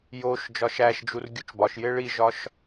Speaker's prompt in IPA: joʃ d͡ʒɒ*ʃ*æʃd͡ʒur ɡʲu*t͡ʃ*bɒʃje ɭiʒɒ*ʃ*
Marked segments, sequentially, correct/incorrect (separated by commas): correct, correct, correct